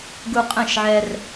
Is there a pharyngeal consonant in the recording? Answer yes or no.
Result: yes